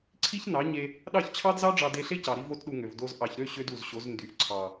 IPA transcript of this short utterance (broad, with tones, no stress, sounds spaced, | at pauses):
ǀʰ i˦ ç n ɑ˨˦ ɲ e˧ | ɗ ɑ˦˨ ç t͡ɕʰ ɑ˦ d z ɑ˦ ɖ͡ʐ ɑ˧ d e˧ ɬ e˦ c ɑ˨ ɾ i˦ v o˦ t ɗ u˧ ŋ ø˨ v d o˨ z ʔ ɑ˨ ç ɾ ø˦˨ ɕ ø˦ d u˨ z ɕ o˨˦ z n d y˨ ʔ ǀʰ ɑ˨